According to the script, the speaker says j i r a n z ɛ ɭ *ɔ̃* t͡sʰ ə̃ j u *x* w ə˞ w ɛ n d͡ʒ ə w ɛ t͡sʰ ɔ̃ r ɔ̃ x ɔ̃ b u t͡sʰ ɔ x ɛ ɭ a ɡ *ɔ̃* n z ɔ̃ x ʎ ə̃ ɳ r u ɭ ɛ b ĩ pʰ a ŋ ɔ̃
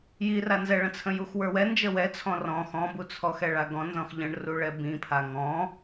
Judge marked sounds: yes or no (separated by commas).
no, yes, yes